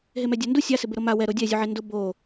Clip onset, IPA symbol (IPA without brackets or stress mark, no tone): ɦ